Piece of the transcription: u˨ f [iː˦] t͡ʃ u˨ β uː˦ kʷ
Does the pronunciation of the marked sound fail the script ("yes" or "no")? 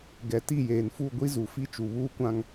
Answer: yes